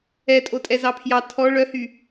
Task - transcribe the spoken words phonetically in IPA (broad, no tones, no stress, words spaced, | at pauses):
ɛ tʼotʼɛzɑpʰjɑ tʰɔ ɭœhy